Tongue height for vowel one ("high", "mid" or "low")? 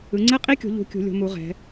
high